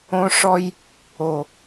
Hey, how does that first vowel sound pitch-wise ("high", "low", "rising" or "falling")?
high